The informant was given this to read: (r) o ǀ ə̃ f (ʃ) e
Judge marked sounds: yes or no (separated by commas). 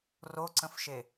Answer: yes, yes